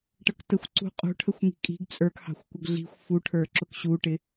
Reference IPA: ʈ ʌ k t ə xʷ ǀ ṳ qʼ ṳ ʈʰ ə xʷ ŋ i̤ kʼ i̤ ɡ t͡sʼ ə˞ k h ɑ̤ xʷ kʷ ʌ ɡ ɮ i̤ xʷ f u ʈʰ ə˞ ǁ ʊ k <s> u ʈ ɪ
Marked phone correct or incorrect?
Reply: incorrect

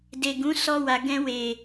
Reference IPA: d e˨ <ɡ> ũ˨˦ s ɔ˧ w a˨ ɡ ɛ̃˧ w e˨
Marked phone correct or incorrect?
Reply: correct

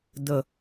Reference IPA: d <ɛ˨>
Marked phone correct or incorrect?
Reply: incorrect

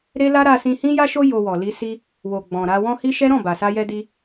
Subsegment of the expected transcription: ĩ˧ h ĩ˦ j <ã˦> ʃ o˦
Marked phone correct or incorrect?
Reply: incorrect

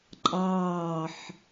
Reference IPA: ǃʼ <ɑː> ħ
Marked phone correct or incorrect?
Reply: correct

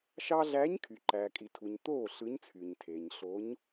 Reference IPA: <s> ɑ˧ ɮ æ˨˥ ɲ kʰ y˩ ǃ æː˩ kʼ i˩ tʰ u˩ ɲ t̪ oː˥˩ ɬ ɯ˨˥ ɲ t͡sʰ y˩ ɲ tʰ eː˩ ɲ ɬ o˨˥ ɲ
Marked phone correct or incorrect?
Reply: incorrect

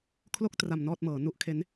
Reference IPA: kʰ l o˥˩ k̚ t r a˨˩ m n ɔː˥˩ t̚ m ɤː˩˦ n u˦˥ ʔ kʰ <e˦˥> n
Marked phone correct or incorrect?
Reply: correct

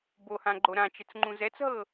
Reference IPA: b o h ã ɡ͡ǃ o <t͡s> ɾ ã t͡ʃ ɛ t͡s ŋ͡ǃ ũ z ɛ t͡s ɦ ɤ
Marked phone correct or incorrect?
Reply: incorrect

